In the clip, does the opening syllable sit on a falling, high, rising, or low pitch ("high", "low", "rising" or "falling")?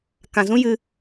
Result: low